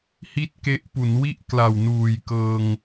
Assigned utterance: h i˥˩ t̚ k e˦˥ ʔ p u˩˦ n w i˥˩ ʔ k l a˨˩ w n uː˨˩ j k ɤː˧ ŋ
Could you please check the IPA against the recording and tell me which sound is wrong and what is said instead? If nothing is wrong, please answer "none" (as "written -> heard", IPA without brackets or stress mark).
none